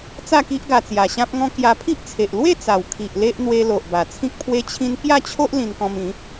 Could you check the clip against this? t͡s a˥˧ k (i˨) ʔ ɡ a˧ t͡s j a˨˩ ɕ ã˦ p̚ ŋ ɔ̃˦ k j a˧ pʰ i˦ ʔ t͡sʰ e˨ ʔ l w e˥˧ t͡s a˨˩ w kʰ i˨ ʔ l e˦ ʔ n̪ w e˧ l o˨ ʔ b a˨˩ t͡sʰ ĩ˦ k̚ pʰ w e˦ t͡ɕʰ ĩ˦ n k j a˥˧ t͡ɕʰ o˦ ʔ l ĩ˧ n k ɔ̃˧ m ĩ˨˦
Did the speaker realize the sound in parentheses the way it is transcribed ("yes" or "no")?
no